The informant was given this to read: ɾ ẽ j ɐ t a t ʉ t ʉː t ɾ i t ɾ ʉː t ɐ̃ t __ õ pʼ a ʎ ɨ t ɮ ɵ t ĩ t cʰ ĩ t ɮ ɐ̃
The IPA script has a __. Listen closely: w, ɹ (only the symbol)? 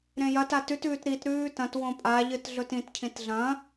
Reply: w